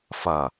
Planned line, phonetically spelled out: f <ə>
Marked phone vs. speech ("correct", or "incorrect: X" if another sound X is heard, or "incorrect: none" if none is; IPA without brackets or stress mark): incorrect: ʌ